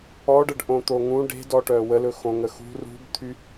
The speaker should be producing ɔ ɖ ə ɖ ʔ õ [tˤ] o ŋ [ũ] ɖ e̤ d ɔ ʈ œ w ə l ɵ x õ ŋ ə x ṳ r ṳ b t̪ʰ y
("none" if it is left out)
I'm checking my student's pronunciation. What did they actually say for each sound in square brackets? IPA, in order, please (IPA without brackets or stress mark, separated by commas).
t̪, ũ